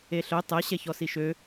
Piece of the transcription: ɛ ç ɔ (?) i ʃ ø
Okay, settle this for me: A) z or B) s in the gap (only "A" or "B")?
B